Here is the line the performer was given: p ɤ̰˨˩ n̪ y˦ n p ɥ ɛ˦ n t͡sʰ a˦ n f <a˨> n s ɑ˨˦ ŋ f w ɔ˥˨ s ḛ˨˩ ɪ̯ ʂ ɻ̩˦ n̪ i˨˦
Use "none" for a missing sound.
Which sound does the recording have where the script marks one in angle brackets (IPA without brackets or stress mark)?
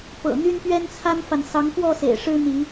a˨